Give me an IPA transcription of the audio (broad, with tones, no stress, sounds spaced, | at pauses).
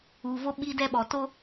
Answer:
uː˨ v o˦ ɓ i˦ d ɛ˦ ɓ ɔ˨ t o˦